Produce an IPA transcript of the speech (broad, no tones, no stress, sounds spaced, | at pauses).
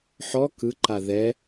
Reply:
ħ ɔ k ɯ ǃ a ð ɛ